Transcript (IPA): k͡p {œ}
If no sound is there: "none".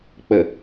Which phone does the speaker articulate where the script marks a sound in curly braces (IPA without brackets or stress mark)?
ə